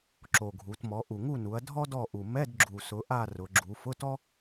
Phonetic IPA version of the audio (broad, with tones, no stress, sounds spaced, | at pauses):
ǁ o˨˩ ɡʱ u˩˧ t m ɔ˩˧ ʔ u˨˩ ŋ u˦˨ n u˩˧ ɐ̯ dʱ ɔ˥ d ɔ˦˨ ʔ u˨˩ m ɛ˧˥˧ d ɡ͡ǁ u˨˩ s ʊ˩˧ ʔ a˦˨ r ʊ˩˧ ɡ͡ǁ u˩˧ f ʊ˧˥˧ t ɔ˥